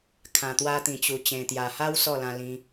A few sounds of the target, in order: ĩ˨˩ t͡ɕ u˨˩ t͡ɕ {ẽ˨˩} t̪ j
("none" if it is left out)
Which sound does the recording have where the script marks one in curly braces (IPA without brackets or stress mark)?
ẽ˨˩